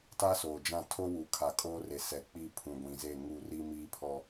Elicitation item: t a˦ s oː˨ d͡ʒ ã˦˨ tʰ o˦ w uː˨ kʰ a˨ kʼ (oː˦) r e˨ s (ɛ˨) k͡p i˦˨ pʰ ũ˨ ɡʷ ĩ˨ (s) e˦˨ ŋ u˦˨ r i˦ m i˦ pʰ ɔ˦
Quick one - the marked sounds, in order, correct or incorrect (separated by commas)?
correct, correct, incorrect